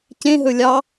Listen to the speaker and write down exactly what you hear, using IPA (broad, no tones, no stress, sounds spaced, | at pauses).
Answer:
c ẽ ɦ ɵ lʲ ɑ